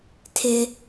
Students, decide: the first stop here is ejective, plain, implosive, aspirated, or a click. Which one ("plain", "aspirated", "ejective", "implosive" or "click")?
aspirated